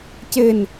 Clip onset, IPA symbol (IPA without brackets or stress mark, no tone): c